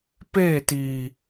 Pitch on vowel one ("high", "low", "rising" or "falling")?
falling